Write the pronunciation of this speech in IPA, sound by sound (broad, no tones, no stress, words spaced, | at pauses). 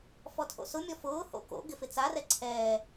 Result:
fɔtʰo̰sʊ mʲɔfʊː ho̰ko̰ ɡɪfɪt͡sa rɛǀʰɛː